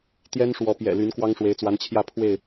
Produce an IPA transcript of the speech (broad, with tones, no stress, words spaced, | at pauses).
t̪jɛ˦nʂwɔ˨˦ pjɛ̰˨˩ly˨˦n kwɑ˦ŋʂwe˨˦ɪ̯t͡swa˨˦nt͡ɕʰjä˥˨ pʰwe˥˨ɪ̯